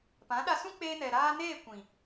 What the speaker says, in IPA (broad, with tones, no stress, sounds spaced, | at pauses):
p ã˨˦ ɗ a˧ s ũ˦ k͡p eː˧ n ɛ˨ ɾ aː˧ n eː˦˨ kʷ ĩ˨